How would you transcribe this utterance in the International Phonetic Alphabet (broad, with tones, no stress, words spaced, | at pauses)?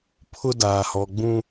pʰʊ˦daː˨hɔ˨ɡ͡bũ˦